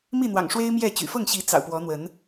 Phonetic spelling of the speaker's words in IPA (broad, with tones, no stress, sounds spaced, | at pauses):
m i˥˨ n̪ w ɑ̰˨˩ ŋ ʂ w e˦ ɪ̯ m j ɛ˥˨ t͡ɕ y̰˨˩ f ɤ˥˨ ŋ ɕ i˨˦ t͡s ɑ̰˨˩ ʊ̯ p w ɔ˨˦ n̪ w ə˨˦ n